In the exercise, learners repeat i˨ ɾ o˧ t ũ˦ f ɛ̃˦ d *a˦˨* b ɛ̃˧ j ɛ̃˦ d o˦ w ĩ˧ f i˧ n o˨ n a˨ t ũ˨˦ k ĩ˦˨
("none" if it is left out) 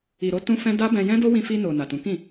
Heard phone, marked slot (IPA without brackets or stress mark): a˦